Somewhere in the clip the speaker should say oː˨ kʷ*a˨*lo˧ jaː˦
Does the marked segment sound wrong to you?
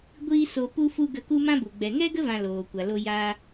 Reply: no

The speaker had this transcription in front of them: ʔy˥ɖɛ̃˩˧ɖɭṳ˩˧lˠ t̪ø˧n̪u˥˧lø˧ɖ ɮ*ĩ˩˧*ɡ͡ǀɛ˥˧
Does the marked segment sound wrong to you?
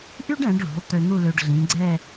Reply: no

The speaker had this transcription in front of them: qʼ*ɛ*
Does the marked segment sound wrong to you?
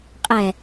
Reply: no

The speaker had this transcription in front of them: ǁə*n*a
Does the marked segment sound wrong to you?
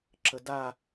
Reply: yes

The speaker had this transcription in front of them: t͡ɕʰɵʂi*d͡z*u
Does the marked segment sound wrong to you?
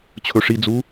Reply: no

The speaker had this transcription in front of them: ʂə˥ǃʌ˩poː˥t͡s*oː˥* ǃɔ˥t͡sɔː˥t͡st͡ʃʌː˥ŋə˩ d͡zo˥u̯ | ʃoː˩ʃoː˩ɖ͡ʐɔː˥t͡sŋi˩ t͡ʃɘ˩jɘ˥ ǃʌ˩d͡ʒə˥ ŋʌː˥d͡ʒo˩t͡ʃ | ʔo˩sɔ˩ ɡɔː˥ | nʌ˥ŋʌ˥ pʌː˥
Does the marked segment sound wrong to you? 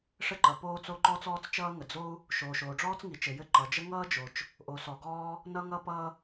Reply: yes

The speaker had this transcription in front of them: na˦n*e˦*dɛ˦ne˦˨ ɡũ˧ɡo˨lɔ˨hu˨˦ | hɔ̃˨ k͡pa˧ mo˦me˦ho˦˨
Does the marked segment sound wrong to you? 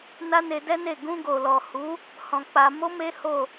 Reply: yes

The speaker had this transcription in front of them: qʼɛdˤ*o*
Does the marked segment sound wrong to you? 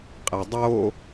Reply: no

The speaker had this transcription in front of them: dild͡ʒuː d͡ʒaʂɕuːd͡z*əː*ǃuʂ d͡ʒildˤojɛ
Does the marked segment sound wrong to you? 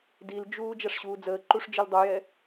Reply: no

